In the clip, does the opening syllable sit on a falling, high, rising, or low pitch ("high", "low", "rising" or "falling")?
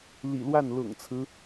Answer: low